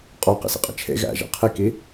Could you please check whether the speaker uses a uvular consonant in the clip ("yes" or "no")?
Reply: yes